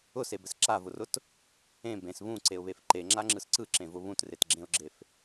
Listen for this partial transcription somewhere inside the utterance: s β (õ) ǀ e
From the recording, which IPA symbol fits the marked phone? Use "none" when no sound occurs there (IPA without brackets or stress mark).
ũ